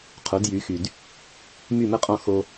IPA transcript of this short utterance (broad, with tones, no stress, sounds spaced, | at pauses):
qʰ o˩˥ d j y˩˥ x y˩ d | m y˥˩ m ə˥ qʼ ɔ̃˥˩ x o˧